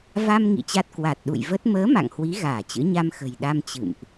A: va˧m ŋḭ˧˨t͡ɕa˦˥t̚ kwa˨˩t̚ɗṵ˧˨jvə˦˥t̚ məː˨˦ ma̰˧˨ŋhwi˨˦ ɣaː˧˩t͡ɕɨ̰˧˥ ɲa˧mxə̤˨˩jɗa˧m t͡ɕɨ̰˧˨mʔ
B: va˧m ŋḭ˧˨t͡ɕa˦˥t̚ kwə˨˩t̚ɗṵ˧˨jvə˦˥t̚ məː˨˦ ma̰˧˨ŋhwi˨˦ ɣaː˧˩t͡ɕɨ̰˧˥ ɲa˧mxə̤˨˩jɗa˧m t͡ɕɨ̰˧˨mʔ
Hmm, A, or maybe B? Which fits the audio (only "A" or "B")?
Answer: A